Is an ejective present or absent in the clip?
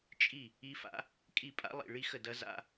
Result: present